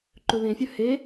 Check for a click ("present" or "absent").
present